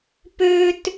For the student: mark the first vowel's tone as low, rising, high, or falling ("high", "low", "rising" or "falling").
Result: high